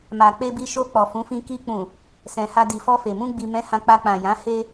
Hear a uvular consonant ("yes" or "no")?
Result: no